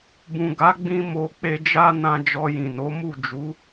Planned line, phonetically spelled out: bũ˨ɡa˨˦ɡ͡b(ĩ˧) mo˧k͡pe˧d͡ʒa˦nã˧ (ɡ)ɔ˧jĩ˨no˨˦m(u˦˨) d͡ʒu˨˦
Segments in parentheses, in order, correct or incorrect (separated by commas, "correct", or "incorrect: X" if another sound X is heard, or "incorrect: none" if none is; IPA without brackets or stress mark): correct, incorrect: d͡ʒ, correct